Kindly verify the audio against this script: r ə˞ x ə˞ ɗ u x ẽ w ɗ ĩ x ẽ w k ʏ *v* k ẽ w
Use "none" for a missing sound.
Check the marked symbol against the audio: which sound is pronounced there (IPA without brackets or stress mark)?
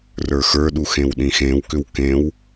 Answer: w